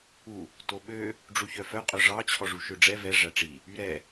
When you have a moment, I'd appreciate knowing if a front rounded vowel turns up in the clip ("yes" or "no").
yes